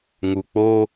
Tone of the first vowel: low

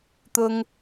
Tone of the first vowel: high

